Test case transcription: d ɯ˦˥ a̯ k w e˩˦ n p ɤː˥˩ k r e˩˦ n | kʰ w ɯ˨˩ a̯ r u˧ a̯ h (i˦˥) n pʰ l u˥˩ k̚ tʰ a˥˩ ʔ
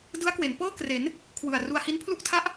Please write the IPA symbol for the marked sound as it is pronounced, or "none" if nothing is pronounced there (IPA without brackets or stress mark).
i˦˥